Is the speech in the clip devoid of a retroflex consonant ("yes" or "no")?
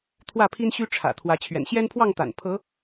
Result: no